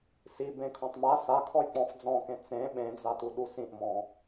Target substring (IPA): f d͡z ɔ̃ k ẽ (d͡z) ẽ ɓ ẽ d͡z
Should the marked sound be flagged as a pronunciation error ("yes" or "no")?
yes